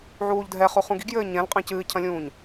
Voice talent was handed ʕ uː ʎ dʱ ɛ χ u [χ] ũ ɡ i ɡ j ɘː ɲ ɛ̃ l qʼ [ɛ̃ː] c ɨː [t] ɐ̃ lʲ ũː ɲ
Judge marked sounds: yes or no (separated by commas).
yes, no, no